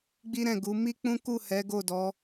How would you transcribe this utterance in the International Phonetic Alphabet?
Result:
ɡ͡b i˦ ɾ ɛ̃˦˨ ɡ u˨˦ m i˦ k͡p ũ˦ k u˦˨ h ɛ˨˦ ɡ o˦˨ d ɔ˨˦

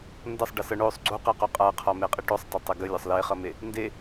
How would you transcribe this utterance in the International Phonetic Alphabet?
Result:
n d ʌ sˤ ɖ ɐ s ʌ ɳ o sˤ ɡ͡ǀ u q e q o qʼ a qʰ ɒ m e qʼ i ʈ o sˤ tˤ e tˤ ɐ ɡ ə lʲ ɒ sˤ l e χ ʌ m e | n d e

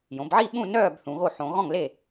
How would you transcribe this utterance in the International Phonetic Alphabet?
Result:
j õ˩˧ b ʕ i˥˨ ɓ ũ˥˨ n œː˥˨ b θ ũ˩˧ ɣ o˥˨ ħ õ˩˧ ɣ ɔ̃˥˨ ŋ l e˥˨

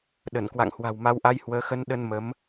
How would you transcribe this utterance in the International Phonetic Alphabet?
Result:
ɗ ə˧˩ n k w a̰˧˨ ŋ h w a̤˨˩ w m a˨˦ w ʔ a˧ j h w əː˨˦ x ə˧ n ɗ ə˧ n m ə˨˦ m

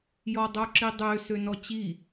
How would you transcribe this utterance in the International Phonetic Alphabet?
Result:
j ɔ dˤ o ǁ i dˤ ø s ø n ɔ t͡ɕ i

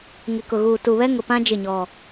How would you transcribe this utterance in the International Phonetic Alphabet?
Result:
ŋ ɪ˨ k ʊ˨ ɣ uː˨ t u˨ β ɛ˦ ŋ ʊ˨ p ã˦ d͡ʒ ɪ˦˨ ɲ ɔ˨

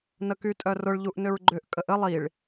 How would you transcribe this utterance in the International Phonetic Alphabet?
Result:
n ə k y tʼ œ r ʊ ɭ ʎ u ʔ n ʏ ɹ ɡ͡ǃ ʏ ʔ kʼ ə ʔ ə lˠ i ɭ

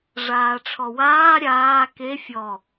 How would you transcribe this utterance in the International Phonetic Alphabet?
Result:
ʐ aː ʈ͡ʂʰ ɔ w aː ɾʲ aː k e fʲ ɔ

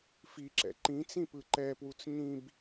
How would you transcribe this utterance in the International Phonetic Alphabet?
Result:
f i ǁ ɛ̰ ǃ ĩ t͡s ĩ p ɯ ǃ ɛ p w u t͡s ɲ ĩ b

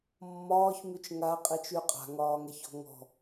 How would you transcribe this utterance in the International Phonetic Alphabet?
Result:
mː ɒː ç m y t͡ʃ ŋ a qʼ i t͡ʃ y qʼ a̤ ŋ ɒː ŋ ɛ ç ɔ̤ ŋ ɔ̤

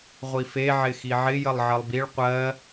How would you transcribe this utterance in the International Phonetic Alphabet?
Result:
ʁʷ i f e ʕ ɪ x i ʕ ɪ j ə lˠ ʕ ə lˠ b i ɭ qʷ ɜ

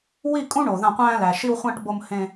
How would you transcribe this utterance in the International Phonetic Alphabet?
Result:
w i˦˨ kʼ ũ˦ ɳ o˨ ð ã˦˨ qʷ æ̃ː˦ l æ˨ ʃ i˦ w χʷ ã˦ ʈ b o˦ m h ẽ˦

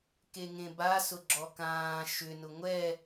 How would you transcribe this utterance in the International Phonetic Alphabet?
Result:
k e ŋ ẽ b a s ʊ ɡ͡ǁ ɔ k ãː ʃ ʏ n ʊ ŋʷ ɛ

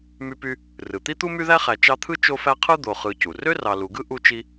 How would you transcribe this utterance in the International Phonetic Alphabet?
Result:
m y˦ p y˦ | r ɯ˩ t̪ i˥ t̪ u˥ m y˦ ð æ˦ χ æ˨ t͡ʃ ɑ˦ t̪ʰ ɯ˥ t͡ʃ o˦ f æ˦ qʰ ɯ˥ d̪ o˨ χ ɯ˨ c u˩ r ø˥ r ɑ˨ l u˨ ɡ ɯ˥ ʔ u˦ t͡ʃ i˦

